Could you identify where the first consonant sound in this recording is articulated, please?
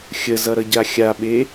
velar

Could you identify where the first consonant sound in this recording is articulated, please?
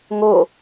velar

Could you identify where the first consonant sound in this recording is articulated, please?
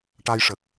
retroflex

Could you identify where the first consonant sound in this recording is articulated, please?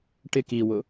retroflex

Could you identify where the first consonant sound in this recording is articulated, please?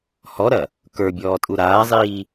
glottal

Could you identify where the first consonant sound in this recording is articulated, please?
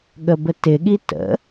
velar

